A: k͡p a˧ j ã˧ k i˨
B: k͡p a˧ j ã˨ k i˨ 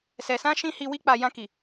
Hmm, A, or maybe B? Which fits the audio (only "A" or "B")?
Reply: A